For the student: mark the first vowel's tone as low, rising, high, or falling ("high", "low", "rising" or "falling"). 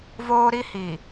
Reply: high